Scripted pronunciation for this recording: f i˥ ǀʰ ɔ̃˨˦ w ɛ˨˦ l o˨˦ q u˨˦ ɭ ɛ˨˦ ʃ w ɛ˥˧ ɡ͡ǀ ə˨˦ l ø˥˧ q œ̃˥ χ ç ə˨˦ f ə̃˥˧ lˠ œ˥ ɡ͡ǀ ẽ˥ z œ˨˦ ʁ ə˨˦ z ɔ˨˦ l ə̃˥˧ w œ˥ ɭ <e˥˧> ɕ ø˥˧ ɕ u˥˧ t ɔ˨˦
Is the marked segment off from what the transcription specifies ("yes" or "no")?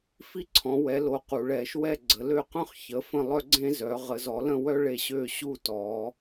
no